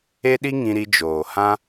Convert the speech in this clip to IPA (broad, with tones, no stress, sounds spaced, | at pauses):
e˦ ɗ i˦ ŋ ĩ˧ ɾ i˧ d͡ʒ oː˨ h ã˦